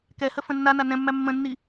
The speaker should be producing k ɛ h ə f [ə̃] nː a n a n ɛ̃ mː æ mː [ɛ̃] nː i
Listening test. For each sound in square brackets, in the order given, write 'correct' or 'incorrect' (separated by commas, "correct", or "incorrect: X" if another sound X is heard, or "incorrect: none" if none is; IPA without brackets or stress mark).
correct, incorrect: ə̃